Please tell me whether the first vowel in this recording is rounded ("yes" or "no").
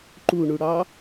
yes